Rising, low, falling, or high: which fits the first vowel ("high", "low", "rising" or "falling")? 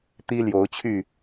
high